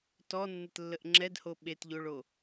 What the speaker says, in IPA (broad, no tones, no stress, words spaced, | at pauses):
tɔnːɘtlːəʔ ŋ͡ǁɛdho ɓetʎoɭo